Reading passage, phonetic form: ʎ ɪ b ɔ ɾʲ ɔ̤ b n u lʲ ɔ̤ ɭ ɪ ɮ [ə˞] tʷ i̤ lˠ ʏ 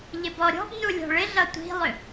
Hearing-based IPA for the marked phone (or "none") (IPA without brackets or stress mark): ʌ